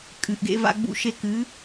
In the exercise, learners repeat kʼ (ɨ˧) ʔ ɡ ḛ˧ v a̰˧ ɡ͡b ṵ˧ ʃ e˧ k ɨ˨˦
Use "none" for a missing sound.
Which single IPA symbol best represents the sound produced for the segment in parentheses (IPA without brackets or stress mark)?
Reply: ɨ˨